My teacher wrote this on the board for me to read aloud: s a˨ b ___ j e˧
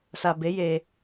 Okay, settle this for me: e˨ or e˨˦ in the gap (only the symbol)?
e˨˦